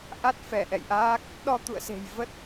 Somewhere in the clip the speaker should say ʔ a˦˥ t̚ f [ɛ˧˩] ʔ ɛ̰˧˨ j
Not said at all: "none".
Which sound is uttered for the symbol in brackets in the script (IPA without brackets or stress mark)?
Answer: ɛ˧˩